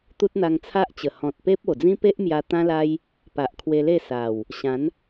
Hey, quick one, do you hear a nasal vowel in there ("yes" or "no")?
yes